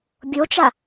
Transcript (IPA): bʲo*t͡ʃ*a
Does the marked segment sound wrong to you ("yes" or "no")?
no